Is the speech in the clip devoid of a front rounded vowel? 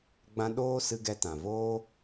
yes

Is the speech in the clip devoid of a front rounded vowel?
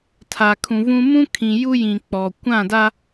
yes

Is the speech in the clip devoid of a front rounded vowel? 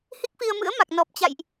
yes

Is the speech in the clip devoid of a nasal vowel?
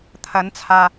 yes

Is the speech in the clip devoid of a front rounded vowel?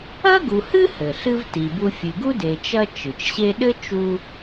yes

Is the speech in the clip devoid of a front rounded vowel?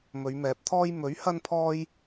yes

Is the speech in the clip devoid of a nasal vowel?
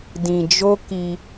no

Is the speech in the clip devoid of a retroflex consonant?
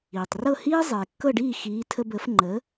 no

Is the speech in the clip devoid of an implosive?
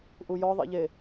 yes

